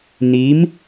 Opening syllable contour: rising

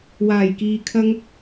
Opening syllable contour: low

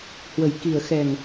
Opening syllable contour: low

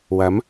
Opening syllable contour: rising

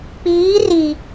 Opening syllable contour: rising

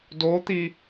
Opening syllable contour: rising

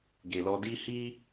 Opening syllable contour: low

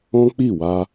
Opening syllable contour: high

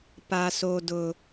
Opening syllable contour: high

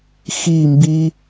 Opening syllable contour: falling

